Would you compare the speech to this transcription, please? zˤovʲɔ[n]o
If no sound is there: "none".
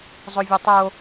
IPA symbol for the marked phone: tˤ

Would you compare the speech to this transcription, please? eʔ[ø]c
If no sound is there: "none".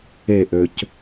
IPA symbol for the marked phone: ø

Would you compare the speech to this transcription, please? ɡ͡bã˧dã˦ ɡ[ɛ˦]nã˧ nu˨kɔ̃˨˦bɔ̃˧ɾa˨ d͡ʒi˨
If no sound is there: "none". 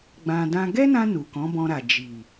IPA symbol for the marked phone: ɛ˦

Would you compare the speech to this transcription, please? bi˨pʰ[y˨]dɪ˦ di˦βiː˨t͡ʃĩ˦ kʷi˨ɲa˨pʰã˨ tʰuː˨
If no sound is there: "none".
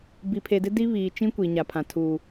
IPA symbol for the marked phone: e˨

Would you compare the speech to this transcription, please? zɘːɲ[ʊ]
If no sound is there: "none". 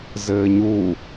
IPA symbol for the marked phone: u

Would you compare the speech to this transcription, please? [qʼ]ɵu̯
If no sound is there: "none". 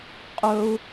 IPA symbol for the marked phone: qʼ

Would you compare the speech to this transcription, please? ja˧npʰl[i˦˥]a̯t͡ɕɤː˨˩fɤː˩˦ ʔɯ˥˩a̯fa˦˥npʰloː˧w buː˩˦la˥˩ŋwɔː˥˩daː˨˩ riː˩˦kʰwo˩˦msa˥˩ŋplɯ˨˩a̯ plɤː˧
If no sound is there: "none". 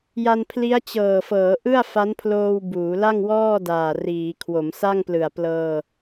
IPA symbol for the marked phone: i˦˥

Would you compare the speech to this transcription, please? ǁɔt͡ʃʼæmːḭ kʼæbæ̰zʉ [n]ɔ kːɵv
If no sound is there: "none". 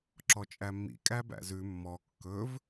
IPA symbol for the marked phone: mː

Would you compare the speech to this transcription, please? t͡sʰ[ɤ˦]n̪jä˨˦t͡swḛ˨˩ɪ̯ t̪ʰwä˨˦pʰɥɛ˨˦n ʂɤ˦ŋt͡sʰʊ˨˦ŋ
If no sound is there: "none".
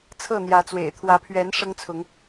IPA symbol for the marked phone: ɤ˥˨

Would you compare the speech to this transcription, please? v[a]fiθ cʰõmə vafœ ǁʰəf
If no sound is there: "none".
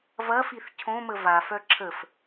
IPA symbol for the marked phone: ɐ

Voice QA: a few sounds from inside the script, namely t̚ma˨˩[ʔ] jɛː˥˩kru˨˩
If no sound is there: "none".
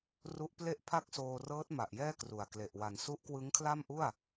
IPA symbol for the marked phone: ʔ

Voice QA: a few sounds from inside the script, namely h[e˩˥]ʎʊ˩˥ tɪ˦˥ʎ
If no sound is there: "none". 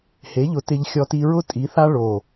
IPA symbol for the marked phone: e˩˥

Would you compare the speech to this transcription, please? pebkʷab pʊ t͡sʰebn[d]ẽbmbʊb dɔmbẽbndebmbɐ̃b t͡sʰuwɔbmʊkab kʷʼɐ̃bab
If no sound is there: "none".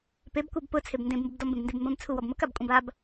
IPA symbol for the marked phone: d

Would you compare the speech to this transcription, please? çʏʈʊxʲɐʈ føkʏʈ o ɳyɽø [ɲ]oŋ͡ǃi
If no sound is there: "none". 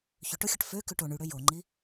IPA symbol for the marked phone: j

